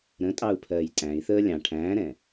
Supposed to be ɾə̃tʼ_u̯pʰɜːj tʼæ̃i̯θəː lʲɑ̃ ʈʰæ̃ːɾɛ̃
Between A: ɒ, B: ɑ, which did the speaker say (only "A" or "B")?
B